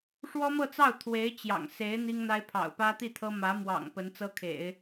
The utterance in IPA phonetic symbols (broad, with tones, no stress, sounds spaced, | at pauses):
ʂ w ɔ˥ m ɤ˥˧ t͡s ɑ˥˩ ʊ̯ t̪ʰ w e˧˥ ɪ̯ t͡ɕ j ɑ̰˨˩ ŋ s e˧˥ ɪ̯ n̪ i˥ ŋ n̪ a˥ ɪ̯ pʰ ɑ̰˨˩ ʊ̯ p ä˥ t̪ i˥˩ t̪ʰ ɤ˥ m ä˧˥ m w ɑ̰˨˩ ŋ p ə˧˥ n t͡s ɤ˥ kʰ ḛ˨˩˦ ɪ̯